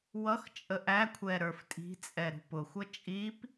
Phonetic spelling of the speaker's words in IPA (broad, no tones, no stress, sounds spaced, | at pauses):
w ʌ x t͡ʃʼ ə ʔ æ kʷʰ ɛ ɾ ə˞ f tʼ i̤ t͡sʼ ɛ ɾ ṳ p ʊ xʷ ʌ t͡ʃʼ i p